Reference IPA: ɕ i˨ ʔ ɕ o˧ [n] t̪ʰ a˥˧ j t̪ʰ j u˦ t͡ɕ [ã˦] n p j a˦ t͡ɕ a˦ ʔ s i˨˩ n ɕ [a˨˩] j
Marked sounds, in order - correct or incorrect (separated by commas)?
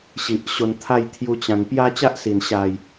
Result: correct, incorrect, correct